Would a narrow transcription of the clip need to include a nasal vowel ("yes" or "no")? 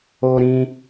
yes